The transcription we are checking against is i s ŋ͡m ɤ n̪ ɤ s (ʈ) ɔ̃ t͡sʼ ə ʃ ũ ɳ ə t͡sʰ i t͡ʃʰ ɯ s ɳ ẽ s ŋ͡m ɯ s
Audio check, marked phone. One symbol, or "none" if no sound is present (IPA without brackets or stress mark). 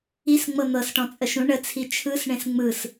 ʈ